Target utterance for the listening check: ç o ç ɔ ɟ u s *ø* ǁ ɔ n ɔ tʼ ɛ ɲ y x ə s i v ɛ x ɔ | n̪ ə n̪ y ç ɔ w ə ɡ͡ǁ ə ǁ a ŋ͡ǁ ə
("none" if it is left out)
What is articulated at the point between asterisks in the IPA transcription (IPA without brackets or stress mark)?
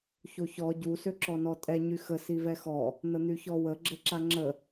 ø